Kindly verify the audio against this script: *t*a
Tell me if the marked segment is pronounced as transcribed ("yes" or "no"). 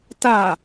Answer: yes